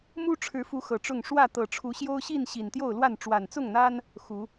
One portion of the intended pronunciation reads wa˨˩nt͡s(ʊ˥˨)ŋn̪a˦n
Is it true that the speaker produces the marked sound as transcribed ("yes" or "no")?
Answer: yes